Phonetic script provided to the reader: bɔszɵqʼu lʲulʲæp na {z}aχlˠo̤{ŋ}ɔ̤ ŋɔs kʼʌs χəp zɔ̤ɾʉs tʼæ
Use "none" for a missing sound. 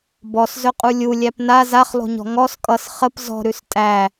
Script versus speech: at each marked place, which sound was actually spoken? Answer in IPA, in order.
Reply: z, ɲ

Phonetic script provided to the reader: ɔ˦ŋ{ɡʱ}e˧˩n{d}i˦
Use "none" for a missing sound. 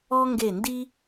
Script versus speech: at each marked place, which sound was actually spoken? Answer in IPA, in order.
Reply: ɡ, d

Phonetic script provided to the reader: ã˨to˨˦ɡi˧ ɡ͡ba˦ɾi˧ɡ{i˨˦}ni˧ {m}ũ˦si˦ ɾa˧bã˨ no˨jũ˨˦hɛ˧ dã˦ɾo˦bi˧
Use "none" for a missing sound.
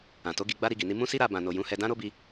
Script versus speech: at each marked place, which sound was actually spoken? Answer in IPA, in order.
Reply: i˨, m

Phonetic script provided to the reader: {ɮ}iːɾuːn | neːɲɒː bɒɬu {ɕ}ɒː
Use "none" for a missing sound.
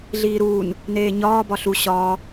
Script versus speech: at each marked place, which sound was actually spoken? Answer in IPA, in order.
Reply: ɮ, ɕ

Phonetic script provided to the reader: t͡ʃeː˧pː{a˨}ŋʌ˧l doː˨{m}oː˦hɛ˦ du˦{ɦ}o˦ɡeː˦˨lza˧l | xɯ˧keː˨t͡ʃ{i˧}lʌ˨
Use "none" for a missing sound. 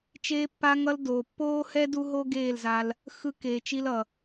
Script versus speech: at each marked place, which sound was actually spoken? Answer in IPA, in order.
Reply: a˧, pː, ɦ, i˧

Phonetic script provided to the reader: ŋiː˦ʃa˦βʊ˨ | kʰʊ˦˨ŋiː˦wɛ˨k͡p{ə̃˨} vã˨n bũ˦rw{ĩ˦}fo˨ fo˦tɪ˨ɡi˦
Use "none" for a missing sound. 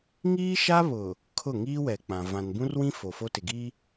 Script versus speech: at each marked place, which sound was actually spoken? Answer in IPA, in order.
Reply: ã˨, ĩ˦

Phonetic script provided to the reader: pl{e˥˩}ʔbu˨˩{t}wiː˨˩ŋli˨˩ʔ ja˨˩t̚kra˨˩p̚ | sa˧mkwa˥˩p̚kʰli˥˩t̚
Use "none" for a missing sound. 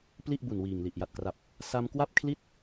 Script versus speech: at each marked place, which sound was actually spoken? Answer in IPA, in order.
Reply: i˥˩, n

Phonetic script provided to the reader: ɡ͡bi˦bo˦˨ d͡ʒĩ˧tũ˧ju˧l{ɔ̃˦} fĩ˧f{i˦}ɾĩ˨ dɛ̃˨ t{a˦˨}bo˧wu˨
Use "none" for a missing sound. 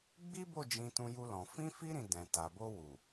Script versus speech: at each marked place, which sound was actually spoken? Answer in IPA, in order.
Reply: ɔ̃˨, i˧, a˨

